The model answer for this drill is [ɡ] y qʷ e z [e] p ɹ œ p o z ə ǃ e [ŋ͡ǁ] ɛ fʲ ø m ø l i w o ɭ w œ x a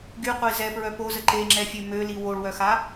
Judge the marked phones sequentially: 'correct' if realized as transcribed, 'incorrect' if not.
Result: correct, incorrect, correct

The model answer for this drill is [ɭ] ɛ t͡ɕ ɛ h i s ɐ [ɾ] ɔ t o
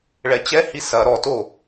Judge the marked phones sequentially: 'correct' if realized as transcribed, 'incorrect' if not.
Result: correct, correct

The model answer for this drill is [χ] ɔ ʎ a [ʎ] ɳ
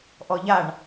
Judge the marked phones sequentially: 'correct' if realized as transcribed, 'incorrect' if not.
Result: incorrect, incorrect

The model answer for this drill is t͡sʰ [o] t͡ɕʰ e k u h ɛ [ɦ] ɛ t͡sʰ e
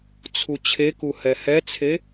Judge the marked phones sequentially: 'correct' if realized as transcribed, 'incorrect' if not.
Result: incorrect, incorrect

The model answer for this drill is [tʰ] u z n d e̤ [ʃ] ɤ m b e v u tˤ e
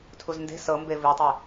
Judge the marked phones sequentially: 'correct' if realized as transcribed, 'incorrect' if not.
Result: correct, incorrect

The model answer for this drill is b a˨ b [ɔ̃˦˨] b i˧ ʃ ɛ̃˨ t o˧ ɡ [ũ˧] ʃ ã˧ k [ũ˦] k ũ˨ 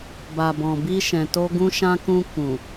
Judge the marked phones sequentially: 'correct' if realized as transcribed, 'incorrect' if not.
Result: incorrect, correct, incorrect

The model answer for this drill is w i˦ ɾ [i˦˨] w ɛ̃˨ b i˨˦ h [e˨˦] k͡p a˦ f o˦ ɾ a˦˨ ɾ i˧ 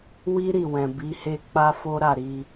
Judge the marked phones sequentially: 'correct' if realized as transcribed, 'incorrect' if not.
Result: correct, incorrect

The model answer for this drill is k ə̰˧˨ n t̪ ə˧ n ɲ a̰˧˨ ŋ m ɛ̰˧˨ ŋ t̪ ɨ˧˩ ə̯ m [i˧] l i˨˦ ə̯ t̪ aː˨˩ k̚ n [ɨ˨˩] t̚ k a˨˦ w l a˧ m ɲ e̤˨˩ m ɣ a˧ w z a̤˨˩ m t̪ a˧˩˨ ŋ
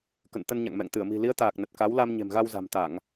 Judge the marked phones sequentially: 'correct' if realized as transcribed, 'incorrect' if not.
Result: incorrect, incorrect

